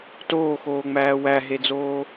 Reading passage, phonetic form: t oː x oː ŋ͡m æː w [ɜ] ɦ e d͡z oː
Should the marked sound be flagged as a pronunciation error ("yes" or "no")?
yes